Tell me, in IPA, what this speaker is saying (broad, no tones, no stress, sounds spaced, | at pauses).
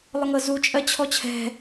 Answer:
lˠ ʊ ŋ ɤ z u t͡ʃʼ ɜ t͡ɕʰ ɔ t͡ɕʰ ɛ̤